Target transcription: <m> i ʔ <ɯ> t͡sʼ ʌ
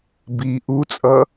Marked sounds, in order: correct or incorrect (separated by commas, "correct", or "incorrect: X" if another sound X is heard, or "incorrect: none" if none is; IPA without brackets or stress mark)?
incorrect: b, incorrect: u